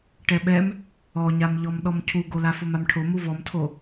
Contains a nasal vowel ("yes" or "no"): no